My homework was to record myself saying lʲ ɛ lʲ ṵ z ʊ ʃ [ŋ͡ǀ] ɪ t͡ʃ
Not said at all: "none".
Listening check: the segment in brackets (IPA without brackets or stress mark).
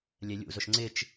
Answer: ŋ͡ǀ